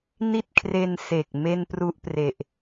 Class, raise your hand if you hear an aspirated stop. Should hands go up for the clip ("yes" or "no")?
yes